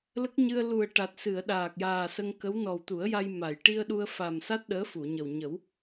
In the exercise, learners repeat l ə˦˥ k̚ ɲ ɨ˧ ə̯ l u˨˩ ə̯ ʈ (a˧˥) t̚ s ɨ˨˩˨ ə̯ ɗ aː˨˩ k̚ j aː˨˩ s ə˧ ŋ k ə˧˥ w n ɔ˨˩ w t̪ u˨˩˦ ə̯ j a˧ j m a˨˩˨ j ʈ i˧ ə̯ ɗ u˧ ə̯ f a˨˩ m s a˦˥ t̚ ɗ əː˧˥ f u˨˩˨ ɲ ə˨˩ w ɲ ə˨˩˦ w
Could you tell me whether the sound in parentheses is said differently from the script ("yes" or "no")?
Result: yes